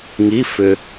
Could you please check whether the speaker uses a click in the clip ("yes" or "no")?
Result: no